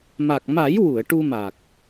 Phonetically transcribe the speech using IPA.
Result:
m a˨˩ k̚ m a˨˩˦ j w u˨˩˨ ə̯ ʈ u˧ m a˨˩ k̚

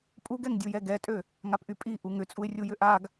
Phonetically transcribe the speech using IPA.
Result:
pʼ u ɡ ɛ ŋ dʲ u j ɛ ɡ ɛ tʼ ø | ŋ a p ʔ y pʼ i ʔ u ŋ ʏ t͡sʼ u ɪ̯ rʲ u j ʏ ʔ a ɡ

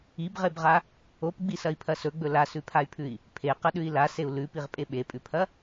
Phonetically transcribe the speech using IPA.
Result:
i b ʁ e b ʁ a | o p ɡ͡b i s ɐ i̯ pʰ ɐ s ɵ ɡ͡b ɵ l a s ʉ pʰ a y̯ pʰ ʉ i̯ | pʰ e q ɐ ɗ ʉ i̯ l a s e u̯ l ʉ p i ʁ pʼ e ɓ e pʼ ʉ pʰ ɐ

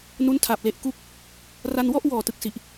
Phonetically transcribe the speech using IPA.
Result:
n u˦˥ n tʰ a˨˩ p̚ l e˦˥ ʔ k u˥˩ k̚ | r a˧ n w ɔ˥˩ ʔ w ɔː˨˩ t ɯ˨˩ k̚ s i˨˩ ʔ

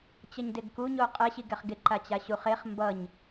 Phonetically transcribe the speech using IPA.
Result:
t͡ɕ ʌ ɲ d e ɡ k u ɲ o qʼ ɛ ɕ i ɡ ɛ χ ɡ e ǃ a t͡ɕ a ɕ u χ e χ m b ʌ ɲ

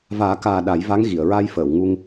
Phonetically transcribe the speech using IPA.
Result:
v aː˨˩˦ k aː˨˩ ɗ a˨˩˦ j v a˧˥ ŋ ɣ i˨˩˨ ə̯ ɹ a˧ j f əː˨˩˨ w ŋ u˧ ŋ

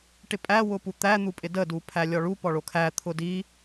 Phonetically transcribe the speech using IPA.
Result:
ʈ ɪ pʼ æ w ʊ p u t̪ æ n̪ u pʼ ɪ d ə d u pʰ æ lʲ ɔ ɭ u p ɔ ɭ o kʰ æ t̪ʰ ʊ d i

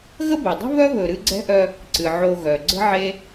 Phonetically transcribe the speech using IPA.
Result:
ɣ ə˥ b e˩ dˤ ə̤˥ β œ˥ β ɵ˨ ɾ ɨ˦ ɡ͡ǀ ɛ̤˥ ʔ œ˦ | ǀ ɨ˩ ʕ o˨ ɣ œ˩ ɡ͡ǀ ə̤˥ ʕ e˦

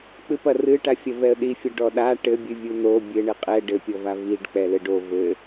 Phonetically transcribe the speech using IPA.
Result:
k͡p ɨ p ɐ r ɨ ʈ a fʲ ɐ v ɛ ə̯ ɗ i fʲ ɐ ɖ ɔ ɗ a ʈ ɘ bʲ ɨ vʲ u n o bʲ ɘ ɳ ɘ qʼ ɛ ɖ ɘ pʲ ɔ v a v i ɖ k͡p ɛ l ɘ ɖ o v ɘ

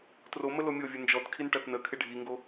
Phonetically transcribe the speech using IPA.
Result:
t r o m ə l o mʲ o vʲ ɵ n d͡ʒ ɔ t kʰ i n ʈ ɐ t n ə kʰ ɪ ɖʱ i ŋ ɡ o

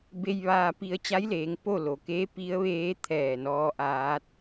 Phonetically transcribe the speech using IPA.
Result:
b e˧ j ʋ aː˧ p i˧ ə̯ t͡ɕ a˧˥ j l eː˩˧ ŋ p o˥˨ l o˩ k eː˧˥ p i˧˥ ə̯ ʋ eː˧˥ t̪ʰ ɛː˧˩ n ɔː˧ ʔ aː˧˥ t̚

